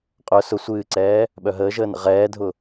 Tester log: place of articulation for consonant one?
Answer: uvular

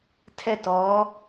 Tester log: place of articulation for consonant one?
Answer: alveolar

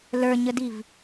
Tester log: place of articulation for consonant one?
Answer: alveolar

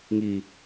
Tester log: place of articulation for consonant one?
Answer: velar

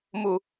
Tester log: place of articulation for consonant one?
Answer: labial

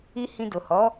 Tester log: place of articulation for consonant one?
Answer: glottal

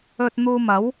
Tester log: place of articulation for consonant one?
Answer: alveolar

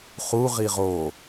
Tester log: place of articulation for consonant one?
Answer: uvular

